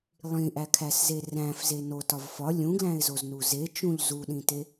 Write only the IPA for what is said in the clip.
lˠĩʔækʰæsze ræ̃fze notɒv fɒ lʲũɡlæ̃ɪ̯zoznu zet͡ʃũʎ zuɗĩte

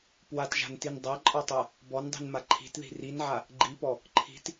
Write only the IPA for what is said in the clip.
pwatʒa̤ntin dˤaǃʼɔtˤa | bɔndˤi̤nma ǃʰi̤tði̤ rinʕa | ɡ͡ǃipɔ | ǃʰi̤t

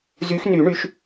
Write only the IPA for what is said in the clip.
zy˨˦xny˨˩˦ ɳy˨˦ʃ

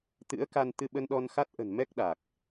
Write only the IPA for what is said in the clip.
t̪ɨ̰˧˥ə̯ ka˧n t̪ɨ˧ɓə˧nɗɔ˧nxa˦˥t̚ ʔə̤˨˩n mɛ˦˥k̚ɗa˨˩k̚

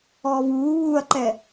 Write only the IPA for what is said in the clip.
ɔːvuː βuːɐ̯ǃɛ

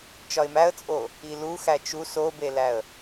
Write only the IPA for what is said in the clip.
t͡ʃɒɪ̯mæə̯t͡sʼo | ilu xæt͡ʃu sobelæə̯

